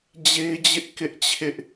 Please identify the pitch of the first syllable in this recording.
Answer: high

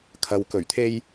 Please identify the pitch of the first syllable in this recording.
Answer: low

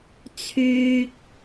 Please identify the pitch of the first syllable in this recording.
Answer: low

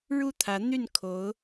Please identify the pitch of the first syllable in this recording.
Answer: falling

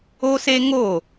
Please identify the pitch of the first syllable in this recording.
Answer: high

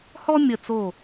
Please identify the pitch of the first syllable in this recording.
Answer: high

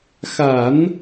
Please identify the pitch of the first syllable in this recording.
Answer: low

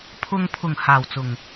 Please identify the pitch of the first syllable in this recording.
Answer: low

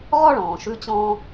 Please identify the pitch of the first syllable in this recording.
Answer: high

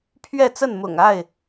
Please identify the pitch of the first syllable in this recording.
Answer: falling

